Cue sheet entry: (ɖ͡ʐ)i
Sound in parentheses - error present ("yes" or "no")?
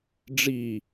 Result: no